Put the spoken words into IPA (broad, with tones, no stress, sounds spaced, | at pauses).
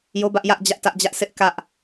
j o˦ b ä˦ ʔ j ä˦ ʔ d͡ʑ ä˦ ʔ t ä˦ ʔ d͡ʑ ä˦ ʔ sʰ ɪ˦ ʔ k ä˦ ʔ